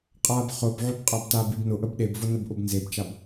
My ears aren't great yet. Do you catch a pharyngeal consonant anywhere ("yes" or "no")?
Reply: yes